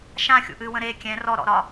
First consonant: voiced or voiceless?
voiceless